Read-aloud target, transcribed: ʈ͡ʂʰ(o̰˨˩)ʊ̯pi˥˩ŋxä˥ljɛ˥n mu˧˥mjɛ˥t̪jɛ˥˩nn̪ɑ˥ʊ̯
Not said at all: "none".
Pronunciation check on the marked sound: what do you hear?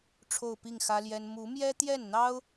o˥˧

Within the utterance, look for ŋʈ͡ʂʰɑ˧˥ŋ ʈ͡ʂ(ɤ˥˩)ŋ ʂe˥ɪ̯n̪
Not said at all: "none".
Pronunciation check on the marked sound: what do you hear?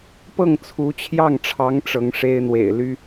ɤ˧˥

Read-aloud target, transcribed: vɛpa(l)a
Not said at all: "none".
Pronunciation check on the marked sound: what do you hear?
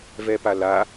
l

